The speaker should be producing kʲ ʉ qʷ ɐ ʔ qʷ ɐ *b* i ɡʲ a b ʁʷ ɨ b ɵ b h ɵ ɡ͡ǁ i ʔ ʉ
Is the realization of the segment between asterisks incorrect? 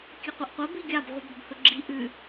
no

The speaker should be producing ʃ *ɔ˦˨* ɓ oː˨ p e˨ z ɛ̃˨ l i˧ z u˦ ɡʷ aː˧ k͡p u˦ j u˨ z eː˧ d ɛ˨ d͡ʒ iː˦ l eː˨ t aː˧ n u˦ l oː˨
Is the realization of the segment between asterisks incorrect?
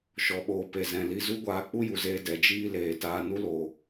yes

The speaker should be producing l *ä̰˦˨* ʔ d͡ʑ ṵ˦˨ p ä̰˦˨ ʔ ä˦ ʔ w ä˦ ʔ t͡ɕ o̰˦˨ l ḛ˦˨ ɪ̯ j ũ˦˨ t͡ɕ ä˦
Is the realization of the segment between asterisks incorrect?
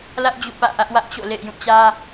yes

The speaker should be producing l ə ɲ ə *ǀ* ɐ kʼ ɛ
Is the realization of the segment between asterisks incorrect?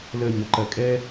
yes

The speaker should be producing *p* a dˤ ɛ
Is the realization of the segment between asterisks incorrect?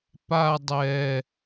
no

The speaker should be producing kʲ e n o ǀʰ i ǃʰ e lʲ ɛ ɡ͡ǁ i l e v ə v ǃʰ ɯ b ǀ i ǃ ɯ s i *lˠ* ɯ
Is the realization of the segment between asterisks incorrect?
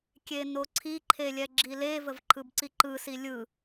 yes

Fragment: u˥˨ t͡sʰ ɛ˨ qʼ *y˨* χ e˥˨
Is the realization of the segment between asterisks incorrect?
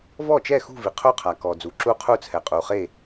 yes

